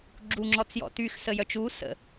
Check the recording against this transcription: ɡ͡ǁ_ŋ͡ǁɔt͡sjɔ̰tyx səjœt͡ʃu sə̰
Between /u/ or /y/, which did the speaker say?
u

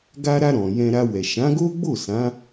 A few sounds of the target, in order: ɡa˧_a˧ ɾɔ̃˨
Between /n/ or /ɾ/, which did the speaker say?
ɾ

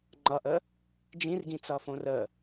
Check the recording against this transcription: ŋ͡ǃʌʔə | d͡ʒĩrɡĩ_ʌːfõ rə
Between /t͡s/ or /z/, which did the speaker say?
t͡s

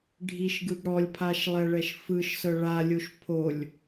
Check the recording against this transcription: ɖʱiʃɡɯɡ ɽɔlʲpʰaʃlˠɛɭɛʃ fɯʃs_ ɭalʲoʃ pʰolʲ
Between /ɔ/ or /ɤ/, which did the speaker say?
ɤ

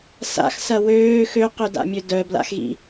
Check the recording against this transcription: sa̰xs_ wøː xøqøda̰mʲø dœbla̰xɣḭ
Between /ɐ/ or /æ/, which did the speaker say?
ɐ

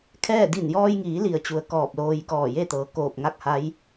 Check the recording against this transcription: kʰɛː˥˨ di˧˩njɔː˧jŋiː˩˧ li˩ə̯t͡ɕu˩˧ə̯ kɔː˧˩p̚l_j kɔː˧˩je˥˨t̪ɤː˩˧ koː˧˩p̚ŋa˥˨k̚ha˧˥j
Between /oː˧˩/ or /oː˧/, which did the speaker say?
oː˧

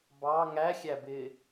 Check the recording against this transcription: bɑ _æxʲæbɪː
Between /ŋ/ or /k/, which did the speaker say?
ŋ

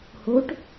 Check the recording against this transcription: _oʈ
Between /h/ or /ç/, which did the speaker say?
h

